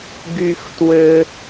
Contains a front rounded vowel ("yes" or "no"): yes